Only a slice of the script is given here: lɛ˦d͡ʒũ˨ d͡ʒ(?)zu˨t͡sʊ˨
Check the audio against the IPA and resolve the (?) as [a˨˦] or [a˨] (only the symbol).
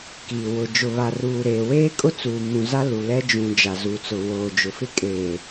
a˨